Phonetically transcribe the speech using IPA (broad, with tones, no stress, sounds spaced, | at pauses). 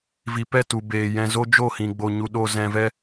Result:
v i˨ p ɛ˦˨ t u˨ b eː˨ j ɛ̃˧ z o˦ d͡ʒ o˦˨ h ĩ˨ ɡ͡b o˨ ɲ u˨ ɗ o˧ z ɛ̃˧ v ɛ˦